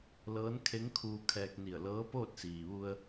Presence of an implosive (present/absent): absent